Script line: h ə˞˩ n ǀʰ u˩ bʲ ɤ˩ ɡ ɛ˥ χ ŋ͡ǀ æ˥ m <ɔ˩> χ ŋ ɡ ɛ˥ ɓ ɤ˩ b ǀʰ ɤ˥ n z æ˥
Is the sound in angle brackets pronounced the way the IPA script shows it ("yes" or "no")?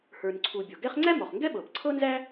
yes